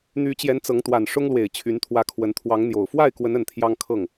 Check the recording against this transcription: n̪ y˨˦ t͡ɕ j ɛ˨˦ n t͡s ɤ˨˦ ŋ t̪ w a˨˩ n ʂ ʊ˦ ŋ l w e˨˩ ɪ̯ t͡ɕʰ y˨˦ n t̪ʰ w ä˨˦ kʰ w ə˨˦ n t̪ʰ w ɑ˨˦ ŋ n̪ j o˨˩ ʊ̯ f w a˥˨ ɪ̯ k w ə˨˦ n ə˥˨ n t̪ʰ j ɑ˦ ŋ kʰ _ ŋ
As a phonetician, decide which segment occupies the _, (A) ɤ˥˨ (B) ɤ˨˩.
A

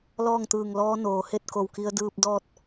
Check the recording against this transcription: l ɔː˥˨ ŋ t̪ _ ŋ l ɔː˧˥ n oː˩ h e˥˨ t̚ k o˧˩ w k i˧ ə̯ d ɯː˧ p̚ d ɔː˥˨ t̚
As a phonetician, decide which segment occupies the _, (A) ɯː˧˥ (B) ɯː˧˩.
B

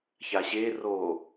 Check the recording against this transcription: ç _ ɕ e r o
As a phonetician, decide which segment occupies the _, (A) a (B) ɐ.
A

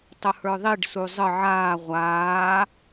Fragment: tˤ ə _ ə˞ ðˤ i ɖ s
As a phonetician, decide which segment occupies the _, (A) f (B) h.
B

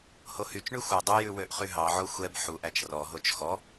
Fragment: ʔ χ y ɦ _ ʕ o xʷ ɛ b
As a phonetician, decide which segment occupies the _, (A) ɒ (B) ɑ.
B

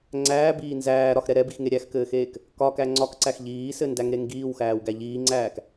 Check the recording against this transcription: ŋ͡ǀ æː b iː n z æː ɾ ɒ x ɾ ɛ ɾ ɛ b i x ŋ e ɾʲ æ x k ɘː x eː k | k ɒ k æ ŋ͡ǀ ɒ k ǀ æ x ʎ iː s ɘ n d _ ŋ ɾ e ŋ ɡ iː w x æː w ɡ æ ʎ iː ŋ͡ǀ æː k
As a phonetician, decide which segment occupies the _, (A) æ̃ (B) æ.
B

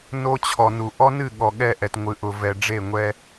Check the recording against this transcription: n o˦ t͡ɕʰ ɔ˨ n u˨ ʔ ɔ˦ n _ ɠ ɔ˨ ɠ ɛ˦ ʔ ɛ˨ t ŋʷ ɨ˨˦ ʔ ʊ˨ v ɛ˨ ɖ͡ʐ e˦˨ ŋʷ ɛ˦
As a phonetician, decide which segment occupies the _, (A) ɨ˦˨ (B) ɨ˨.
A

